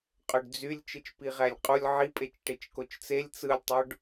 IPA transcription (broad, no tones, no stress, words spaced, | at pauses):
qʼøɖd͡zylʲ t͡ʃɯt͡ʃpiʁælʲqʼulʲ ʕipʼet͡ʃ ʈet͡ʃkot͡ʃt͡selʲ t͡sɯlʲtˤoɖ